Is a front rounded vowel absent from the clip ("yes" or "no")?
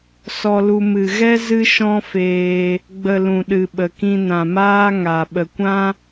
yes